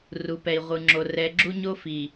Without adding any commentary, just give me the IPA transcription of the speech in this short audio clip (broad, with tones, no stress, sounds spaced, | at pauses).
r u˨ p ɛ˨ i̯ ʁʷ ɯ˨ ŋ͡ǁ o˨ r ɛ˨ ɡ͡ǁ u˦ ɲ o˦ f i˨